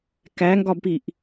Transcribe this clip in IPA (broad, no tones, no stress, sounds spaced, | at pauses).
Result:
k æ ŋ ɡ ɒ b p i ʔ